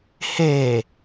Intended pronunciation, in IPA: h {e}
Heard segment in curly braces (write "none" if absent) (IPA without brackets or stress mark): e